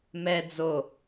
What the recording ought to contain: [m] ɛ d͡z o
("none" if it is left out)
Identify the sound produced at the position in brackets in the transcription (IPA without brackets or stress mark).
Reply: m